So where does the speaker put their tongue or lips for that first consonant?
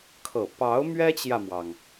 velum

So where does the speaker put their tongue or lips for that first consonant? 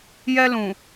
palate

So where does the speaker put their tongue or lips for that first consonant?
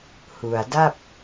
throat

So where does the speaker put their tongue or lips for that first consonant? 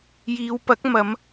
palate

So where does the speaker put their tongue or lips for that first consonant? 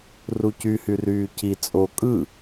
tongue tip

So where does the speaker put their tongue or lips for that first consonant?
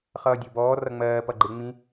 uvula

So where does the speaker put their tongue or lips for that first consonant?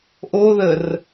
throat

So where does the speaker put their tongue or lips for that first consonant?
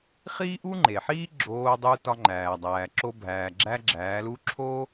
uvula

